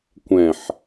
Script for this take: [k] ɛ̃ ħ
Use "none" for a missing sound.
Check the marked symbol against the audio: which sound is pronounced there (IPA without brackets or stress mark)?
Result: kʷ